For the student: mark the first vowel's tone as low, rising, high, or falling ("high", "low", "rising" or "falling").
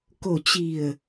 low